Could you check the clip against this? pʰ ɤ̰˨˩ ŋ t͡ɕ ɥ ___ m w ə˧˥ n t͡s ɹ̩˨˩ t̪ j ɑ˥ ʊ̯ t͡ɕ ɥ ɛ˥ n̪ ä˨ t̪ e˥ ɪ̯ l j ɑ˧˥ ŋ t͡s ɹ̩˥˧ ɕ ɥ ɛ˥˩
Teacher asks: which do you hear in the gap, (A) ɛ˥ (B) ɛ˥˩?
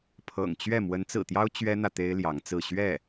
B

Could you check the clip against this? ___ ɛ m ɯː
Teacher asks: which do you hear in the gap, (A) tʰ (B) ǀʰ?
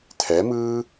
A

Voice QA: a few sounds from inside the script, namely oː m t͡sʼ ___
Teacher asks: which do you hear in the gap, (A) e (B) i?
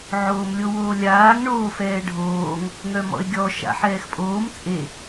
A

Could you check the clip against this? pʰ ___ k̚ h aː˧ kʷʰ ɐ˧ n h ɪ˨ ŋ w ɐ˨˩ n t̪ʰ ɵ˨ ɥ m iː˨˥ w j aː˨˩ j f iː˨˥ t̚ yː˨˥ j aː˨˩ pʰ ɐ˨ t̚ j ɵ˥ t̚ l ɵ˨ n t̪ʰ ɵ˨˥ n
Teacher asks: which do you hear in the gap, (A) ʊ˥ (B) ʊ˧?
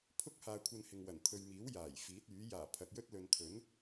A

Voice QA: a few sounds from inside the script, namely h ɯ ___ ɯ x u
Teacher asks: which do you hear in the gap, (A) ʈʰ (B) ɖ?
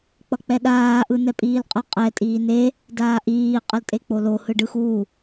B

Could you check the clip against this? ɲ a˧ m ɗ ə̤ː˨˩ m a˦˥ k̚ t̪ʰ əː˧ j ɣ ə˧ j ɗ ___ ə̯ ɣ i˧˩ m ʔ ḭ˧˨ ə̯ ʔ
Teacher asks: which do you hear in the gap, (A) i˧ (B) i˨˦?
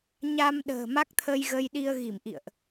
A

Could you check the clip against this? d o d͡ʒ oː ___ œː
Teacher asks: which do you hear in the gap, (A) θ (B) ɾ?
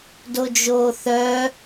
A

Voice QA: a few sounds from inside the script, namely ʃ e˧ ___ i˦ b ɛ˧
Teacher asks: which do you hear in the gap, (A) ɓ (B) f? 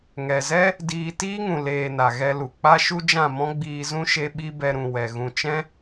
A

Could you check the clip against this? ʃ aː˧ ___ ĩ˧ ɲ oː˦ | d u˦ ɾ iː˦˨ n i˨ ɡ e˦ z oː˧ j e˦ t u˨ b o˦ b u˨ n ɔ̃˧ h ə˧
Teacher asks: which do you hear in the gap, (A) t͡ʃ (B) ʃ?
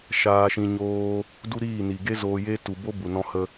B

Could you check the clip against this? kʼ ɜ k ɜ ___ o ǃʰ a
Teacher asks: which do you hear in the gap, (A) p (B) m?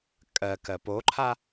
A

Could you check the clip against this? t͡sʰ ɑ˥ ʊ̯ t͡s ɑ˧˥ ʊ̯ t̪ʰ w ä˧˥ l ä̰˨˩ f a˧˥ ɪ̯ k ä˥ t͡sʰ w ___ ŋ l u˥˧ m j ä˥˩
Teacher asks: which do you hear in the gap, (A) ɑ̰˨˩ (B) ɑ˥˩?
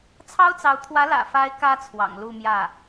A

